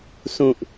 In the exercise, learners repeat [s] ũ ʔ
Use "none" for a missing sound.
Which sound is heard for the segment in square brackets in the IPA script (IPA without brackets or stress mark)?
s